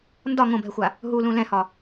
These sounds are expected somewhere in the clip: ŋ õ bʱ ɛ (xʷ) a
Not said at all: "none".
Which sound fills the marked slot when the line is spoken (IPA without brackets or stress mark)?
xʷ